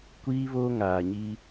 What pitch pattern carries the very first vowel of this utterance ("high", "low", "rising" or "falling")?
high